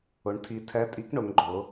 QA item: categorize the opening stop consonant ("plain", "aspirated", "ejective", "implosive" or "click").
aspirated